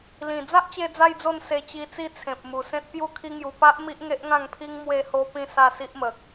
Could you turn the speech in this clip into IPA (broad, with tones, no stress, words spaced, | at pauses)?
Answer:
lĩ˨˩ d͡za˦ʔt͡ɕe˧d͡za˧jd͡zo˧n se˧t͡ɕi˧t͡si˥˧ t͡sʰẽ˨p̚mu˨˩sẽ˦t̚pju˥˧ kʰi˦ŋju˧ pa˦ʔ mi˦ʔŋe˦ʔŋã˥˧ŋpʰi˦ŋ mwe˧ho˧pĩ˧ sa˥˧si˦ʔmə˨k̚